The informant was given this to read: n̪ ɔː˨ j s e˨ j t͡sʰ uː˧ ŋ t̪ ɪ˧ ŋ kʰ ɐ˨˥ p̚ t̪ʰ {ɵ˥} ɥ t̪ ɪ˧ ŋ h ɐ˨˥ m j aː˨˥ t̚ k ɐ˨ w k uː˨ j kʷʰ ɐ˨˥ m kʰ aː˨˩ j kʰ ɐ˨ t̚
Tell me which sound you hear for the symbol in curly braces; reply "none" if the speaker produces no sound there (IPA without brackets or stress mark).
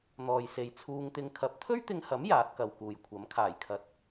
ɵ˥